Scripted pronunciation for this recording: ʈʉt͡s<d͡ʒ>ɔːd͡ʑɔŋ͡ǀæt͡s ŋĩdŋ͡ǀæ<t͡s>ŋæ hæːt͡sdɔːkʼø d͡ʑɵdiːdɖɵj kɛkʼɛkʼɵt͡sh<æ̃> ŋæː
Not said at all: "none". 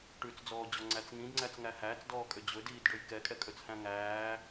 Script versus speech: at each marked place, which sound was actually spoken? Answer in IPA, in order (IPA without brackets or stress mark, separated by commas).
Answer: d͡z, t͡s, æ̃